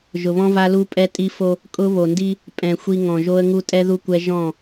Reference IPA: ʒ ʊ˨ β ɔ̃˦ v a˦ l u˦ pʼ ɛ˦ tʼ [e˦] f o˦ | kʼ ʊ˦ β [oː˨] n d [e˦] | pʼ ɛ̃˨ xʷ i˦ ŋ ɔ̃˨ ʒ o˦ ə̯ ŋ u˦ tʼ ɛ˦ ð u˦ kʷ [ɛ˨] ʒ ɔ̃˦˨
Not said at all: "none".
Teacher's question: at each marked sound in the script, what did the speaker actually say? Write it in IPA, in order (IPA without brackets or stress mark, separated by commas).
i˦, o˨, i˦, ɛ˦